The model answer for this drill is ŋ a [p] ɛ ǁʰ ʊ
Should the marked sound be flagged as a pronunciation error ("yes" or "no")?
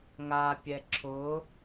yes